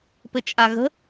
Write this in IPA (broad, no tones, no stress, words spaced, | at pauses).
pɘt͡ʃʼaɣə̤